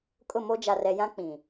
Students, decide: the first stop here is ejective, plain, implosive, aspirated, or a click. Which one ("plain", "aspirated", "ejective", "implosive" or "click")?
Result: ejective